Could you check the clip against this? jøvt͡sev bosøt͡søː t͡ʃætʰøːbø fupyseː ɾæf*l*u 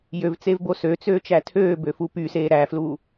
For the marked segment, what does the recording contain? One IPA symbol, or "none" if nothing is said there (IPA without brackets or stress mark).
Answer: l